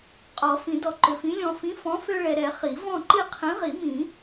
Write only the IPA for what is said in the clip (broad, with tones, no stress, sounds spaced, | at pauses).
qʼ ɔ˨˩˦ f ĩ˨˩˦ d ɔ˨ ǃ ø˨ f ĩ˨˥ lʲ ɔ̃˨ f ĩ˨˥ f ɔ̃˨˥ f ø˦ ɭ ɛ˨ ɾ ɛ˨˩˦ χ i˨˩˦ v ɔ̃˥˨ ǃ i˥˨ qʰ ĩ˨˥ ʁ i˨˩˦ m ĩ˨˩˦